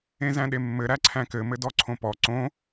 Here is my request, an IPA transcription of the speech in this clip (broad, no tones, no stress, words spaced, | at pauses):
ẽzæ̃ɗemːɘ ɾæǀʰæ̃kɘ mɘdɔǀʰõpɔ ǀõ